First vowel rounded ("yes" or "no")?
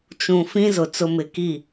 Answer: yes